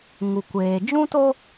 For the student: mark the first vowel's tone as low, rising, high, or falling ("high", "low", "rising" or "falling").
low